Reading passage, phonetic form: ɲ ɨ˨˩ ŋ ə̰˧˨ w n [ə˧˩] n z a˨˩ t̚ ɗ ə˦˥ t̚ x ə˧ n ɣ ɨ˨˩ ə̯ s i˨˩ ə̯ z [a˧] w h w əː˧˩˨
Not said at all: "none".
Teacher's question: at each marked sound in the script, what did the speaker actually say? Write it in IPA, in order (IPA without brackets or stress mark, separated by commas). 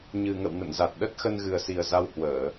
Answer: ə̰˧˨, a˧